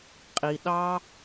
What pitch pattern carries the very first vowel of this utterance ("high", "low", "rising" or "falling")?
low